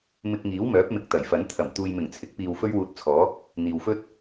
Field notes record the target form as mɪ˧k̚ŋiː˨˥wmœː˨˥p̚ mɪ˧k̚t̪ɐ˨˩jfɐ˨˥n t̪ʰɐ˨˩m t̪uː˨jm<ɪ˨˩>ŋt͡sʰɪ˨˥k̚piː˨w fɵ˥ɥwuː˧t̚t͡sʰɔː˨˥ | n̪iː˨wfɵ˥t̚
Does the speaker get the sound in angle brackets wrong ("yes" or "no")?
no